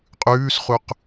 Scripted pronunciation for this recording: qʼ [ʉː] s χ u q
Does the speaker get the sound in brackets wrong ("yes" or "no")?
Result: no